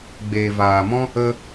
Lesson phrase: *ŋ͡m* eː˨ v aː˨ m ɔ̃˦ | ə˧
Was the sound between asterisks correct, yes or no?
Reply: no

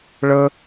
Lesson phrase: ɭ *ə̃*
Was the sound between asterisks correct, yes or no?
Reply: no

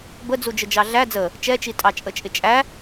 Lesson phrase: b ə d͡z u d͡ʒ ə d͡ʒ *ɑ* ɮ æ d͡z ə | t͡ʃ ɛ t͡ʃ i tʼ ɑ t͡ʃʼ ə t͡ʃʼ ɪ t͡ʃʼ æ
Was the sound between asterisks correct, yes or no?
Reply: yes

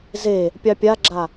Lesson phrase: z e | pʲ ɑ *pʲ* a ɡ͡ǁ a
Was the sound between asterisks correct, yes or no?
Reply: yes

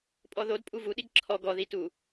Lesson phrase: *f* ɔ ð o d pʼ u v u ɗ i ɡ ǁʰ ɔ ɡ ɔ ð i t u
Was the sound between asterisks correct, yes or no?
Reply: no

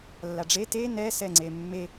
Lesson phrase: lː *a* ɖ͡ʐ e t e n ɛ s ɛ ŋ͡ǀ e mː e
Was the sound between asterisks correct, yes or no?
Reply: yes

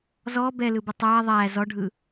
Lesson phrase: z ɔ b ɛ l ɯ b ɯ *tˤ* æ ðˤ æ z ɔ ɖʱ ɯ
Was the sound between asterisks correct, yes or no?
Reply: yes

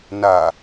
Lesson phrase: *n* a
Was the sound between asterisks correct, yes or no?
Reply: yes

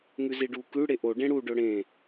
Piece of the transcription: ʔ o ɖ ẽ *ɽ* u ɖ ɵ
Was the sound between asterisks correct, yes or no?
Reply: yes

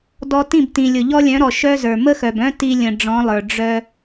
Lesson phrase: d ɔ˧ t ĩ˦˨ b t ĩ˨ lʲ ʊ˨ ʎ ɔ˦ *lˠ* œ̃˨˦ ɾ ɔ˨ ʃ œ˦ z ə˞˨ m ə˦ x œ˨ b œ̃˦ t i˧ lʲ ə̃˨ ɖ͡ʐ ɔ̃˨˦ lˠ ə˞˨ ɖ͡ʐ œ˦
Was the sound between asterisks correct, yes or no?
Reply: no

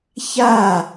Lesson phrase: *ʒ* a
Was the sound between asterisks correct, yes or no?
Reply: no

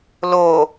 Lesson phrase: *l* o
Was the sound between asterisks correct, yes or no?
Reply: yes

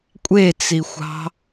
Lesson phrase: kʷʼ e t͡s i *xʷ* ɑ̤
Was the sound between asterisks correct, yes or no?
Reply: yes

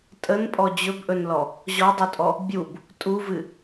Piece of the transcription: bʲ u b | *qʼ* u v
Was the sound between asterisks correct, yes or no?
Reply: no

